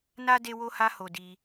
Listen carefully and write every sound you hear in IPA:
n a˦ d e˦ w o˦ h a˦ h o˦ d i˦

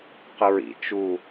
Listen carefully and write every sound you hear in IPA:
q ə ɹ ḭ t͡ʃ u

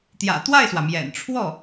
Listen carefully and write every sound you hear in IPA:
t̪ j ä̰˨˩ t̪ w a˥˩ ɪ̯ s w ä˩ m j ɛ̰˨˩ n ʈ͡ʂʰ w ɔ˥˩

